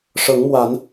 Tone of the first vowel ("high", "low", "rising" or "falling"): rising